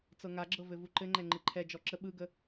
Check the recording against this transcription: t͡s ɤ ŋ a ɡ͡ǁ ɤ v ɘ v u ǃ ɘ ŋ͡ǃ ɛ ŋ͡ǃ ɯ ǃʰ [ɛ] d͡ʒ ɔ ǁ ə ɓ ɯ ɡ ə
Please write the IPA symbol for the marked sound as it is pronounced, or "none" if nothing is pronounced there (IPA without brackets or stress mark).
ɛ